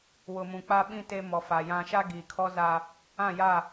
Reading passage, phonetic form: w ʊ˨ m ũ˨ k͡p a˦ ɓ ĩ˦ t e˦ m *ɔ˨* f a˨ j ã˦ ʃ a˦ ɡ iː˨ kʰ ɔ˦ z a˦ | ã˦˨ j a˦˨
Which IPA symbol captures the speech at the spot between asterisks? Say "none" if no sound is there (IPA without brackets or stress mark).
ɔ˨